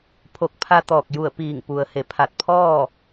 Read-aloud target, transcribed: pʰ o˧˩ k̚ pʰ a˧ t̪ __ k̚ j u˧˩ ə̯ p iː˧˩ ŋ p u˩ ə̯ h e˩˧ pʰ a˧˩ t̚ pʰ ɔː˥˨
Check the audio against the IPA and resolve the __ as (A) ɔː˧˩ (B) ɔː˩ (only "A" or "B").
A